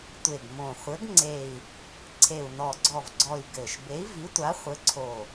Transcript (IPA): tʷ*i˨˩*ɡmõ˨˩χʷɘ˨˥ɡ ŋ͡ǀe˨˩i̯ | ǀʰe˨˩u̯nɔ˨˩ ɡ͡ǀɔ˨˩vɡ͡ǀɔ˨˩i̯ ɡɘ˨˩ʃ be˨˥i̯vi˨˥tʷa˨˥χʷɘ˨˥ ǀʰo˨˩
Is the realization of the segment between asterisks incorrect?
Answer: yes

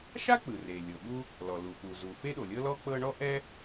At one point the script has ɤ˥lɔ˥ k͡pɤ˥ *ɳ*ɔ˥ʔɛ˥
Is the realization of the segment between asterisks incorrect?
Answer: no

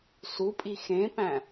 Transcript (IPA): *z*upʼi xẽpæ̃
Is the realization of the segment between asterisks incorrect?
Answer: yes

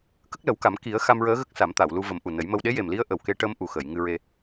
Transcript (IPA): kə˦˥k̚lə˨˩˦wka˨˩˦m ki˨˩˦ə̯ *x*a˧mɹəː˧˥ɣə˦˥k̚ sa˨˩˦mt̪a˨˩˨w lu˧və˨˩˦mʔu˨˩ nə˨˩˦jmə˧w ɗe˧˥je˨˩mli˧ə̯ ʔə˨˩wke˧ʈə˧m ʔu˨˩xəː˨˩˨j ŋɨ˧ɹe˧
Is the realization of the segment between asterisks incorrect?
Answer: no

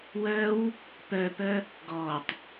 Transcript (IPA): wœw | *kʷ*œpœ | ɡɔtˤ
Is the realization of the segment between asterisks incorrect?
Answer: yes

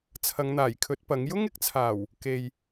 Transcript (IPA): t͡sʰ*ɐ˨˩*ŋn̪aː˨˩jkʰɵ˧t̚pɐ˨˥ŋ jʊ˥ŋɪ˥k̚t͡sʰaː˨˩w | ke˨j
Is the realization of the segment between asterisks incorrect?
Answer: yes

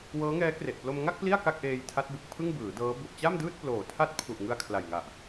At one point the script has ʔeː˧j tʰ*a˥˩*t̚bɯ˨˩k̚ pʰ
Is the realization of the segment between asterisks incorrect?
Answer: yes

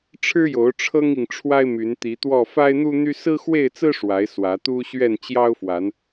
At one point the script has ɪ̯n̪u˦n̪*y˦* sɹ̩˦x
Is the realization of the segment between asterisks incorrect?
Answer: no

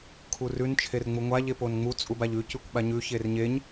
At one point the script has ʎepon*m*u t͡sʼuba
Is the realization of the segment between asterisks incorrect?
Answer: yes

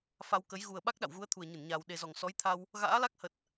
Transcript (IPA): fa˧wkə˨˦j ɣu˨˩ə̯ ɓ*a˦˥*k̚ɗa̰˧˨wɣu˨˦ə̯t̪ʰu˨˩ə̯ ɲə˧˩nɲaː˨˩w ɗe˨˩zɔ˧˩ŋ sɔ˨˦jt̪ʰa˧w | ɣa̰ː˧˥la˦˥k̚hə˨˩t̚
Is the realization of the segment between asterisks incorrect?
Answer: no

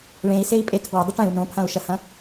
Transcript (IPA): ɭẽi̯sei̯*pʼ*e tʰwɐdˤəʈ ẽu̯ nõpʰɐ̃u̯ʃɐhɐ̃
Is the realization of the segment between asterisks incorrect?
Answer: no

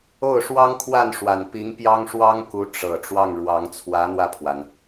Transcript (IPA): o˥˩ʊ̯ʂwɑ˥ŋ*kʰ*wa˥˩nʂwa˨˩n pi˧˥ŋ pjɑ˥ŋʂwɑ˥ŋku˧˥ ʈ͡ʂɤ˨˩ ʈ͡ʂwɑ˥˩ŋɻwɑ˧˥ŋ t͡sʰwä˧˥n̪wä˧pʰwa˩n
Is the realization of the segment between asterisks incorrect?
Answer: no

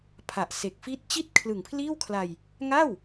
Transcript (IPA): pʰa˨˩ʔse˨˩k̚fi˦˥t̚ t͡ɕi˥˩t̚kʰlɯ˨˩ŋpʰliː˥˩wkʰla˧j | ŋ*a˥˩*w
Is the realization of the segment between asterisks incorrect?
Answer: no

